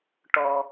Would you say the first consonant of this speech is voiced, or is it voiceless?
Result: voiceless